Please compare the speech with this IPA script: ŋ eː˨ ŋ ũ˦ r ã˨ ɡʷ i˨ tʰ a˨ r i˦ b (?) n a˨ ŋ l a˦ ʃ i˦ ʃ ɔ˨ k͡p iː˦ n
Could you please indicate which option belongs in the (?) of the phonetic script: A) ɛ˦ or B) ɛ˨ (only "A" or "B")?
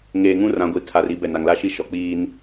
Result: B